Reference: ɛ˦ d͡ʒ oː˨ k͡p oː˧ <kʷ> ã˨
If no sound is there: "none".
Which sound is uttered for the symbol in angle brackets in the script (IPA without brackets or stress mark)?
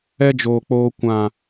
kʷ